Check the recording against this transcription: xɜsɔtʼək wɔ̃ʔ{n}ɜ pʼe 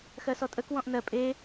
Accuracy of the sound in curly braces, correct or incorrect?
correct